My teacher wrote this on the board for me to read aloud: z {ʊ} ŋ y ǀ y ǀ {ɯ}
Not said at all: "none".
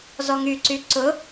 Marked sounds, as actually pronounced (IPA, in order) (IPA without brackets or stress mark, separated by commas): ɔ, ʊ